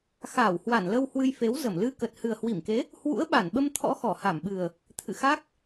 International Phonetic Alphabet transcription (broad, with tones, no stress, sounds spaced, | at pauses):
x aː˧˩ w h w a˧˩ n l ə˧ w h w ɨ˧ j f e˨˦ w z ə˧˩ m l ɨ˧ k ə˨˩ t̚ h ɨ˨˩ ə̯ h w i˧˩ m k e˨˦ | h w ṵ˧˥ ə̯ ɓ a˧˩ n ɓ ə˧ m t̪ʰ ɔ̰˧˥ x ɔ˧˩ h a˧˩ m ɓ ɨ˨˩ ə̯ | t̪ʰ ɨ̰˧˨ x a˦˥ k̚